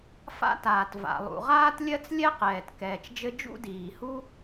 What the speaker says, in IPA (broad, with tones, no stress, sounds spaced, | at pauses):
f a̰˥ t aː˩ t v a̰˩ lˠ ṵ˩ ʁ aː˥ t lʲ ɜ˥ t͡s lʲ ɛ˥ q ɛː˩ t k ɛː˩ t͡ʃ d͡ʒ ɘ˥ d͡ʒ ṵ˥ d iː˩ h u˥